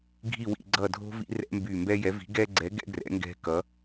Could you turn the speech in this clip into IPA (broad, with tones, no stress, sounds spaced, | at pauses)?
ɡʱ i˧˩ w ḭ˧˩ ɡ͡ǀ ʌ˧˩ dʱ o̤˦ v ḭ˦ r ɛ̰˦ m b y˧˩ m b ɛ˦ j ɛ˨˥ v i̤˨˥ ɡ ɛ˦ ɡ͡ǀ ɛ˨˥ ɡ ɛ̰˦ ɡ r ɛ̰˨˥ ŋ ɡ ɛ̤˦ k ʌ˨˥